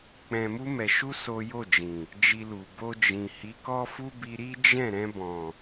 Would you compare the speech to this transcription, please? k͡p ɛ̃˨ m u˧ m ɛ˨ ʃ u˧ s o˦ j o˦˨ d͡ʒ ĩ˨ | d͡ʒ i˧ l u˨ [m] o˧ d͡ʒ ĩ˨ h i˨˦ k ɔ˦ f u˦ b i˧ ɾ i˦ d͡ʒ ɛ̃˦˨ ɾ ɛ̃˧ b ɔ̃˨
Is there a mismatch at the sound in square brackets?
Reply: yes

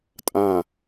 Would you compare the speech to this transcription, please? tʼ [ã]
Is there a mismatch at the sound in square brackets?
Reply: no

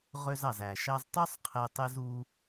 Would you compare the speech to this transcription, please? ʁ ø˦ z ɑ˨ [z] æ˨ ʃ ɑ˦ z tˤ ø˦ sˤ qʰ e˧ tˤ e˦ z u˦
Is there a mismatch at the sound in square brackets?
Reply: no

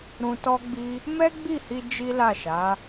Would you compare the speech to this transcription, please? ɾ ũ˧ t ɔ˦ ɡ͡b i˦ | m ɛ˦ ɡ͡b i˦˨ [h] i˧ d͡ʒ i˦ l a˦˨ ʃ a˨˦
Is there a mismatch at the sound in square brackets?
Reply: no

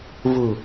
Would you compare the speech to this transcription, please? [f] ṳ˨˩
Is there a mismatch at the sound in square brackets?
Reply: yes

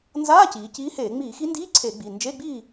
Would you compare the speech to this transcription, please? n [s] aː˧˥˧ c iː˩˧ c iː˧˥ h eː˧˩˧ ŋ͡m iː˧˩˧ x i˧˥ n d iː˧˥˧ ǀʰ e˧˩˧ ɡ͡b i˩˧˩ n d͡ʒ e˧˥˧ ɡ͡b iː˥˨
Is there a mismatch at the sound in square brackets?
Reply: yes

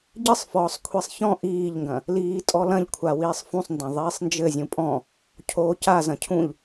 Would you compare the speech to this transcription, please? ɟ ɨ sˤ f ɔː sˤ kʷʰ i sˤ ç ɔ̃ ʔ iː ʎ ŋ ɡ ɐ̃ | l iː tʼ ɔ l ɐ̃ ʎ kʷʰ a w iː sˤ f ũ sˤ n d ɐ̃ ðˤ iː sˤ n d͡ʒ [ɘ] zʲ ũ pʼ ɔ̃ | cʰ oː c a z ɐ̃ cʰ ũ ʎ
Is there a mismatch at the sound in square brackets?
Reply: no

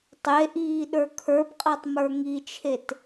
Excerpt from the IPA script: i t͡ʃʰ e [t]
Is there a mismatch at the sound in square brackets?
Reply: no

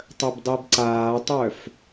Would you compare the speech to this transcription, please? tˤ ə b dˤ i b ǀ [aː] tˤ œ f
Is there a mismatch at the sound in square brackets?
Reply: no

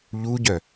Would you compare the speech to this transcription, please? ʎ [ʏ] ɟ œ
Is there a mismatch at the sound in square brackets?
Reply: yes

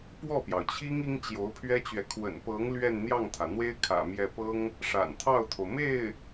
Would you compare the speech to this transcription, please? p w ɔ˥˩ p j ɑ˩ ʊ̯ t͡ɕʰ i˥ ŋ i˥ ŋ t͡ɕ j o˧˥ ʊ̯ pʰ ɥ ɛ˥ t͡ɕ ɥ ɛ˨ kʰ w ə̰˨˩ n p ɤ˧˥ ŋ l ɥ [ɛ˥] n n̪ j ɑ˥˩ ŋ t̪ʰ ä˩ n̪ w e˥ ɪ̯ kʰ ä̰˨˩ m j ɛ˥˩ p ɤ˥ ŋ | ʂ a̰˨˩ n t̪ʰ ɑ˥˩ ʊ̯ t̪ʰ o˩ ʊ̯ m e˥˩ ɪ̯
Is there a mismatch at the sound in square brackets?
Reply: yes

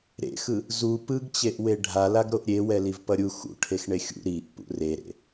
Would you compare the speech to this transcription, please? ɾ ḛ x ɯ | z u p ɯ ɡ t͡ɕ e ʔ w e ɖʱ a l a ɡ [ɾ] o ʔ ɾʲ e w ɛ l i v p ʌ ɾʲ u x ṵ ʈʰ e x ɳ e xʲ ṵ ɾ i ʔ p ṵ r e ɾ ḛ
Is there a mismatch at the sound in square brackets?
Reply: no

